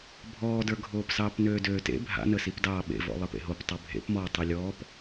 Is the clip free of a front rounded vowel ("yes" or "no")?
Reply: no